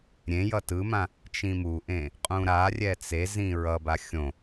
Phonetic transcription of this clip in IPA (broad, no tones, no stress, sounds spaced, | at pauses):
ɾʲ ẽ j ʌ t ɯ m ã | t͡ʃ ĩ m u ʔ ẽ | qʼ ũ ɾ a rʲ ɛ t͡s e z ĩ ɹ ʌ b a xʲ õ